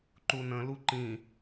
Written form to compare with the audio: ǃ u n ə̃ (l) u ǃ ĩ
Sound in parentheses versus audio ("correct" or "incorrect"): correct